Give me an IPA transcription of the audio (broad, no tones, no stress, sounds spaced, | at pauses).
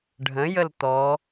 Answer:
ɖʱ ə̃ j ə l t̪ ɔ